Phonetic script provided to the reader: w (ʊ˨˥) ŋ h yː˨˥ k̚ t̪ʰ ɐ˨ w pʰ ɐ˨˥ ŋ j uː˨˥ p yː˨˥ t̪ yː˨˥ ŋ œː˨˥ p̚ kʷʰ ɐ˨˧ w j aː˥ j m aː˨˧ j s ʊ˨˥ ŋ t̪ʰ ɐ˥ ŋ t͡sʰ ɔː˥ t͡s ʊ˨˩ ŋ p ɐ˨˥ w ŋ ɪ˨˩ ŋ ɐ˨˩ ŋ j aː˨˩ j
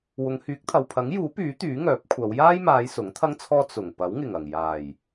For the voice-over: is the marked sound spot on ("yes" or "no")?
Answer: no